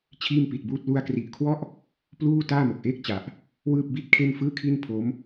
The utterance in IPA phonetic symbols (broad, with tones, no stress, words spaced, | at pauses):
t͡ɕʰiː˥˩mpi˨˩t̚buː˥˩t̚ lu˧a̯kri˨˩ʔkʰwɔ˥˩ʔ | pluː˥˩ taː˥˩mo˨˩k̚ʔeː˥˩k̚t͡ɕa˨˩ʔ | wɯː˥˩p̚bi˥˩t̚kʰe˥˩nfɯː˥˩ kʰi˥˩npʰo˦˥m